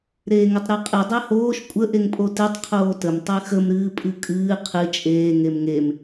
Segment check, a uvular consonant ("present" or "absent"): present